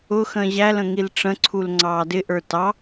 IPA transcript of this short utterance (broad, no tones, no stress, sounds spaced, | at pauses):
ʊ x ə̃ː ʑ æ l ə̃ ŋ i l ʈ͡ʂ ə̃ ǀʰ u l ŋ͡ǀ ɑː d ɪ ʔ ə˞ t ɑ